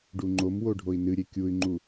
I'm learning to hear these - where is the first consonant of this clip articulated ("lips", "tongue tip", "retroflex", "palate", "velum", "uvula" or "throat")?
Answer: retroflex